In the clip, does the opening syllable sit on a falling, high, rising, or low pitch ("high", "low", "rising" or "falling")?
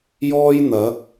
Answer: high